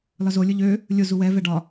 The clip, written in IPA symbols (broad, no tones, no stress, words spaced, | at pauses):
lɒzo lʲʊʎø | lʲʊ zuwɛ vɛɖɒ